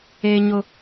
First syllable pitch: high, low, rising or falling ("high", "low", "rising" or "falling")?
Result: high